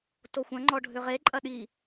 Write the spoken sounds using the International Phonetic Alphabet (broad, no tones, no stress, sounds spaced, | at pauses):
t o xʷ ɐ̃ ŋ͡ǃ ɔ ɖʱ ʏ ʁ e ǃʼ ɐ ɗ i